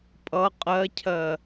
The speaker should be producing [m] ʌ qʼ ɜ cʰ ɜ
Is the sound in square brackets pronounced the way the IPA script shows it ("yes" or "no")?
no